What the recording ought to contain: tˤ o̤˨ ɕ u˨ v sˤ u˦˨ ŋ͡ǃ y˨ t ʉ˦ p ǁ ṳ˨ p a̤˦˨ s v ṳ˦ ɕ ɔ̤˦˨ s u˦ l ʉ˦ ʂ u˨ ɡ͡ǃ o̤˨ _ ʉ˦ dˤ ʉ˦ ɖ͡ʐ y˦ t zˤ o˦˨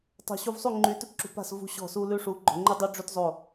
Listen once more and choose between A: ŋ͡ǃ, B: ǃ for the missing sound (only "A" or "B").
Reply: A